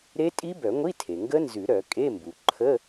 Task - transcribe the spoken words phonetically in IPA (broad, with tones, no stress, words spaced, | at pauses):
ɾe˦˥tʼi˦˥bœ˨˩˦ŋʷi˧˥˧ tʰe˩ŋɡə˦˥nzʉ˨˩˦ ɾœ˨˩˦ kʼe˧˥˧mbu˩ ǃʰə˧˥˧